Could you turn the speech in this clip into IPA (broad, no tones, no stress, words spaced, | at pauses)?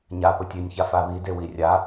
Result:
ɲa pɵtʲenʲça faβi dewirʲa